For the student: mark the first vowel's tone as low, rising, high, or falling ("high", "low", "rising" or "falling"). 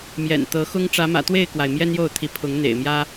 low